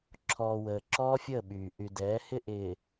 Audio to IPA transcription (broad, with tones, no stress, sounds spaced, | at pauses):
ǁʰ ɔː˨ w əː˨ ǁ ɔː˦ fʲ əː˦˨ ɓ yː˨ ʔ y˨ d ɛː˨˦ h ɪ˦ ʔ ɪː˨